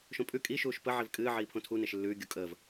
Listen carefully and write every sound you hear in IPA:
ʃ õ pʼ ʉ kʼ i ʃ uː ʃ p ə ʕ i v kʼ ɨː ʕ iː pʰ õ tʰ u n e ʃ lː ʉː ɡʲ u kʼ əː v

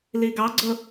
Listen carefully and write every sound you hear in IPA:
l i ɡ ɑ ɡ͡ǀ ʊ

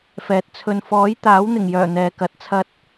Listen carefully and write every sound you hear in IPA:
f ɛː˨ t̚ t͡sʰ ɵ˨ n f ɔː˨˥ j t̪ aː˨˥ w n̪ ɪ˨˩ ŋ j œː˨˩ n̪ ɛː˨ k ɐ˨˥ t̚ t͡sʰ ɐ˥ t̚

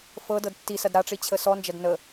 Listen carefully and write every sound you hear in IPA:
f ɤ d ɤ d tː i s ɐ d ɾ a ʈ͡ʂ i t͡ɕʰ ə s ɔ n d͡ʒ ɐ d n ə

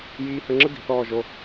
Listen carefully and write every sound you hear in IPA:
j iː˧ h ə˧ ŋ͡ǁ ə˦ d i̤˨ θ ɔː˦˨ ʒ o˧

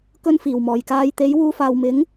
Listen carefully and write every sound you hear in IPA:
k ɵ˥ n f iː˨˩ w m ɔː˨˩ j k aː˧ j t̪ e˨˥ j w uː˧ f aː˨ w m ɪ˨˥ ŋ

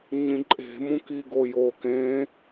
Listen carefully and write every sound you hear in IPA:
ɲ ĩ ǃʼ e̤ m ũ k i ɡ o j o k ẽ

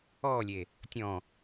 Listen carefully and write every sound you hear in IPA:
ɔː lʲ e | tʲ ɔ̃

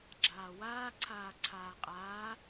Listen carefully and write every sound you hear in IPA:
ɡ͡ǁ aː w aː ǀʰ aː ǀʰ aː qʼ aː

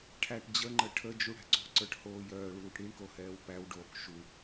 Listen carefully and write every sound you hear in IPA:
ʈʰ æ ʈ d͡ʑ ə ŋ͡ǃ ə ʈʰ ə d͡ʒ u ɽ æ̤ ǀ o̤ ǀ ə˞ ʈ h oː j œː ɭ uː ʈ ɽ i ɳ k o h ɛː w p æ w ɖ oː k ʃ u

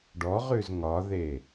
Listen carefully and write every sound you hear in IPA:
ɖ ɔ ʁ ʉ z ŋ ɒ ð e

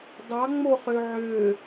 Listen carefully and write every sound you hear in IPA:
d ɑ ŋ͡m o χ ø ʕ ø

